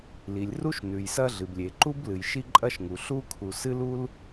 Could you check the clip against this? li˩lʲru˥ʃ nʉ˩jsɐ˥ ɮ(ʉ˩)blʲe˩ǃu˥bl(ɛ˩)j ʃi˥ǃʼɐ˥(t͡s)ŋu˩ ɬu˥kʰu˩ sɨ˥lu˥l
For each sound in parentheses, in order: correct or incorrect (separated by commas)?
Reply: incorrect, incorrect, incorrect